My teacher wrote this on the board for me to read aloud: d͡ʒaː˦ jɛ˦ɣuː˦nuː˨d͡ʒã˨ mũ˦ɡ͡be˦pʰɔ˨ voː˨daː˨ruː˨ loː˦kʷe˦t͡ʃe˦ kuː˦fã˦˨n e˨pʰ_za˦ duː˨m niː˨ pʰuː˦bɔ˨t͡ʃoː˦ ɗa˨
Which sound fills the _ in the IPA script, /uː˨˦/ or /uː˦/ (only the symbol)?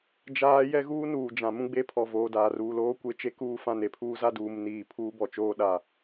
uː˦